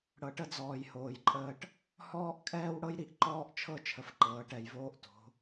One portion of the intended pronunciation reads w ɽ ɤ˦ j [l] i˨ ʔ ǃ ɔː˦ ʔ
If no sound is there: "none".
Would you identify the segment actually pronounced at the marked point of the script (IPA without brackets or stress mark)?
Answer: ɾ